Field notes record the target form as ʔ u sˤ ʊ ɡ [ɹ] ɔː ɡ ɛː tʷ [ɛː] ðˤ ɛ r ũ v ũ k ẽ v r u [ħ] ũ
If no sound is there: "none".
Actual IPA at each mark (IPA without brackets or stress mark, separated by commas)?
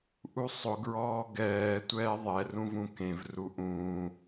ɹ, ɛː, ʔ